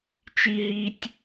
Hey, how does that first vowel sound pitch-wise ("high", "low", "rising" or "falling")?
high